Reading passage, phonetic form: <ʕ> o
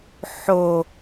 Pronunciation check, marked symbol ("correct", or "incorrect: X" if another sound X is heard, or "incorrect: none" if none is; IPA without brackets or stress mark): incorrect: ħ